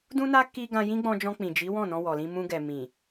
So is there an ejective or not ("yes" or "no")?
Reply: no